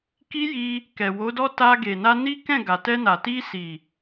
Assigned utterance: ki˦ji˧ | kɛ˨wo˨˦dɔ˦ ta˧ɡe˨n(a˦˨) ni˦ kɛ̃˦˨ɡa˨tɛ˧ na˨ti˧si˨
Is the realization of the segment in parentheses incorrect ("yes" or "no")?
yes